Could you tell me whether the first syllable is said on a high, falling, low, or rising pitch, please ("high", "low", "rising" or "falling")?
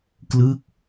falling